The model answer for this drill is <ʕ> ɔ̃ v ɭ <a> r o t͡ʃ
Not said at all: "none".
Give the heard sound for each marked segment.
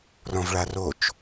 r, a

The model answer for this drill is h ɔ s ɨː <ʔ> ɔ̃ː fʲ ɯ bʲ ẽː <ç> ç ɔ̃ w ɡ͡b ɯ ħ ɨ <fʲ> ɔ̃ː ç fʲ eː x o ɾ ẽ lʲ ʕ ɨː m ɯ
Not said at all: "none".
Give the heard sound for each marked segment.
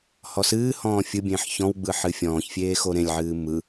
h, ħ, fʲ

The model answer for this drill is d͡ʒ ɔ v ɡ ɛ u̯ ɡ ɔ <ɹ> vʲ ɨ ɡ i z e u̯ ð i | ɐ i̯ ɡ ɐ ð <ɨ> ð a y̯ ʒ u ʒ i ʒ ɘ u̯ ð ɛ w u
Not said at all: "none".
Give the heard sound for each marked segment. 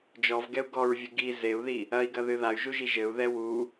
ɹ, ɨ

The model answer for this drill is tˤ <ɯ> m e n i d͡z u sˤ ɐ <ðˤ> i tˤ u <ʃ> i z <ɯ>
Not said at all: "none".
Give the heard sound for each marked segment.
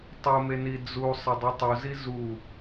u, dˤ, z, u

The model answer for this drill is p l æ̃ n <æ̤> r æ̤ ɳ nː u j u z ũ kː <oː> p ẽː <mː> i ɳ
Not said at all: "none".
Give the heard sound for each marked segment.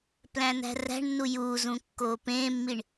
æ̤, oː, mː

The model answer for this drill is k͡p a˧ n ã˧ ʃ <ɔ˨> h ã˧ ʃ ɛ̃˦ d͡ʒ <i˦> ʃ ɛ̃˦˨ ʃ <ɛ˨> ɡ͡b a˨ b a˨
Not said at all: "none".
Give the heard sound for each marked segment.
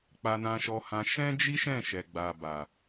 ɔ˧, i˦, ɛ˨

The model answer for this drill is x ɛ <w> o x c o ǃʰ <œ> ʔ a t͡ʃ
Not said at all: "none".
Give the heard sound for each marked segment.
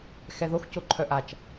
ð, œ

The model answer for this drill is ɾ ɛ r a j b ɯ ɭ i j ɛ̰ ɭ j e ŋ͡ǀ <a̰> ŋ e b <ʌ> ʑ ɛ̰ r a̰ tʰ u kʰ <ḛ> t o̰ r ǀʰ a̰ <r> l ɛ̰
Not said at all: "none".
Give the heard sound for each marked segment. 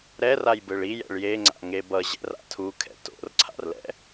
a̰, ʌ, ɛ̰, r

